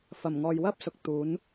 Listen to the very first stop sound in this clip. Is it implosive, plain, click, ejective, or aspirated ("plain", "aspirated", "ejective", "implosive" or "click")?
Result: plain